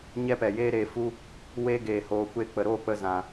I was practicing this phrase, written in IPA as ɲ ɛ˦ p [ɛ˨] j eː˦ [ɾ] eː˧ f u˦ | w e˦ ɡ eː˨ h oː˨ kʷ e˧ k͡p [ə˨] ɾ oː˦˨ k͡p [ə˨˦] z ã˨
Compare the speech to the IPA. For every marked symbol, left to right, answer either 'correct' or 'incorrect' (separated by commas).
correct, correct, correct, incorrect